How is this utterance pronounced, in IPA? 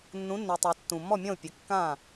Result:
nː ũ˩˥ nː e˩ tˤ a˩ tː ũ˩ mː ɔ˥˩ mʲ ɔ̃˥˩ u̯ pʲ ɘ˩˧˩ kː ã˥˩

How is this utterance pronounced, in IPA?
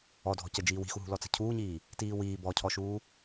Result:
ɔ dʱ ɔ̤ c ə d͡ʒ iː w i̤ x u ɦ ṳ l ɔ t͡s ə̤ cʰ uː ɲ iː | t iː w iː b ɔ cʰ ɔ ʃ uː

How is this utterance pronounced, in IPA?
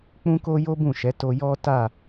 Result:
k͡p ũ˦ k o˦ j o˦ b ũ˦˨ ʃ ɛ˨˦ t o˧ j ɔ˦ t a˦˨

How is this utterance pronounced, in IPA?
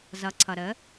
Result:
z ʌ˩˥ ǀʰ ʌ˩ ɾ ə˩˥

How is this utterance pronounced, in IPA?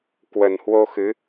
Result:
k w ə˨˩ n h w o˧ x ɨ˨˦

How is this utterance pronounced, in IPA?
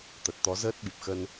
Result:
t̪ ə˨˩ t̚ t̪ ɔ˨˦ z əː˦˥ t̚ ɓ i˨˩ p̚ x ə˧ n

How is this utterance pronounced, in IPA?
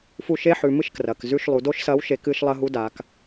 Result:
f u˧ ʃ e˧˥ ħ ʉ˩ m ɨ˥ ʃ k r ɐ˩ k z ʉ˧ ʃ lˠ u˩ d o˥ ʃ s ɐ˧˥ w ʃ e˧ k ɨ˧˥ ʃ lˠ ɐ˧˥ ɦ u˧˥ d a˩˧ k

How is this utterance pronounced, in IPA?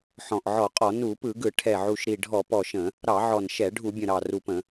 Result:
ħ ɔ̃˨˩ ʔ ʕ ɔ˧˩˧ qʼ ɔ˧˩˧ n u˧˩˧ p ɯ˧˩˧ ɡ ɯ˧˩˧ ʈʰ ɛ˨˩ ʕ u˨˩ ʃ ɾ i˨˩ ɖʱ ɔ˧˩˧ p ɔ˨˩ ʃ ə̃˧˩˧ | ɾ ɑ˧˩˧ ʕ ɔ˨˩ n ʃ ɛ˧˩˧ ɖʱ u˧˩˧ bʲ ə̃˨˩ ɾ ɑ˨˩ r u˨˩ p ə̃˧˩˧

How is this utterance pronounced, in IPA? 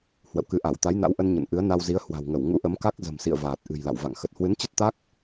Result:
h w ə̰˧˨ w k ɨ˨˦ ʔ a˧˩ w t̪ a˨˦ j n a̰˧˥ w ʔ ə˧ n ɲ ə̰˧˨ n ʔ ɨ˨˦ ə̯ n a˧ w z i˨˦ ə̯ h w a̤˨˩ w ŋ ə˧˩ w ŋ ṵ˧˥ ʔ ə˨˦ m k a˦˥ k̚ z ə̤˨˩ m s ḭ˧˨ ə̯ v aː˨˩ t̚ ʔ ɨ̤˨˩ j l a̰˧˨ w v a̰˧˨ ŋ x ə˨˩ t̚ h w ɨ˨˦ n t͡ɕ ə˦˥ t̚ t̪ a˦˥ k̚

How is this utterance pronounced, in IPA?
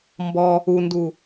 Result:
m b ɔ | u n d u

